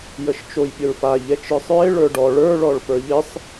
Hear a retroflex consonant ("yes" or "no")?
yes